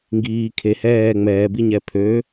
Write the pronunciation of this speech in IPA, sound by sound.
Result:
ŋɡiː kʰe hɛː ŋ͡mɛːbiɲɛ pʰø

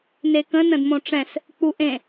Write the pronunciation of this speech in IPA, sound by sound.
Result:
nekə̃ nə̃dmõʈ͡ʂɛ̃s | k͡puʔẽ

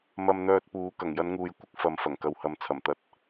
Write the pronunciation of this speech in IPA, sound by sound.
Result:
mɐ˧mn̪œː˧t̚puː˨˧ kɐ˨˩ŋjɐ˨˧nŋuː˨j kʷɪ˥k̚fɐ˨m fɐ˨˩ŋkɐ˨whɐ˨˧m t͡sʰɐ˨˩mt̪ɐ˨˥t̚

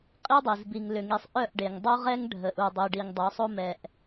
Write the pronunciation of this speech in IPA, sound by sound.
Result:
qʼi˦dˤi˨z bi˨ŋlʏ˨ŋi˨sˤ ʔœ˦˨ʔɖe˨ŋ dˤo˦ʁɛ˦ŋ ɖʱə˨ʔu˨dˤi˨ ɖi˨ŋdˤo˨˦sˤo˦mɛ˨ʔ

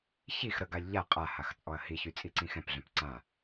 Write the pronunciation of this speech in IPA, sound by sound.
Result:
çix ɾəɡalʲ ʎa qʼahax t͡sʼɔɐ̯hiçy t͡sʼiǀĩxɛ̃pɮœ̃p ǀã

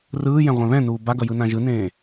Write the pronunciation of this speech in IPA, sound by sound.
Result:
rɯːjɛ̃ ʁʷɛ̃βɛ̃nuː baɡʌ jɯnãʒɯnẽː

